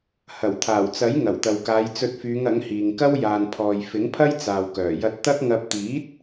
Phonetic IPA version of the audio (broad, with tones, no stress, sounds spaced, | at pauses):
h ɐ˨˩ w t̪ʰ aː˨˩ w t͡s ɐ˨˥ j ŋ ɐ˨˩ w t̪ ɐ˨ w k aː˨˧ j t͡s ɵ˧ t̚ f yː˨˧ ŋ ɐ˨˥ ŋ h iː˨ ŋ k ɐ˥ w j aː˨ n pʰ ɔː˨ j f ɪ˨˥ ŋ pʰ ɐ˥ j t͡s aː˨ w k œː˨˩ j ɐ˧ t̚ t̪ ɐ˥ k̚ ŋ ɐ˧ p̚ t̪ iː˨˥ t̚